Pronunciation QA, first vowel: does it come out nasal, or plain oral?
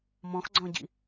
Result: nasal